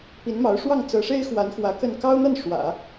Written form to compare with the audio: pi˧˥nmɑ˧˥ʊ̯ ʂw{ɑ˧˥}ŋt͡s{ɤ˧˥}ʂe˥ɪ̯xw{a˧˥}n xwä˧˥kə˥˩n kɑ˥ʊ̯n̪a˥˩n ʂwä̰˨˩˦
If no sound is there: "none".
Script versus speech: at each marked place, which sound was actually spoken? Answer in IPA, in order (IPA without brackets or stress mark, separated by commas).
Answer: ɑ˥˩, ɤ˧˥, a˧˥